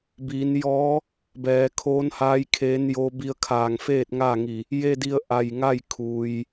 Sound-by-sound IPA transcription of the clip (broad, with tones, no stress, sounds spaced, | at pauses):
b iː˩˧ n j ɔː˧˥ | b ɛː˩˧ kʰ oː˧˥ n h aː˧˥ j kʰ eː˧˥ n j oː˧˥ b i˧ ə̯ kʰ aː˧˩ ŋ f eː˥˨ t̚ ŋ aː˥˨ ŋ i˧˩ | j e˧ d i˧ ə̯ ʔ a˧˩ j ŋ a˥˨ j kʰ u˩ j